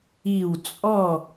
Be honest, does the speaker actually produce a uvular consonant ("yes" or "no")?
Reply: no